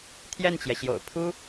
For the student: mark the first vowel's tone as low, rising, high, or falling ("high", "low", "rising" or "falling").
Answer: falling